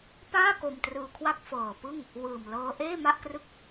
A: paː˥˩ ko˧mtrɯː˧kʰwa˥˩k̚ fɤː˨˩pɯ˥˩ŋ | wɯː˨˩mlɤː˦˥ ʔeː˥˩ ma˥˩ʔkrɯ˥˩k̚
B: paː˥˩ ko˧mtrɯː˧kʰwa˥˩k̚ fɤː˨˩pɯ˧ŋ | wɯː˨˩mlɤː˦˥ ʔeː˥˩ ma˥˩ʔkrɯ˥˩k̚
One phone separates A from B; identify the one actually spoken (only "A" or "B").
A